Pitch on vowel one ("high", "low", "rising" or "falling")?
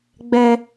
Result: low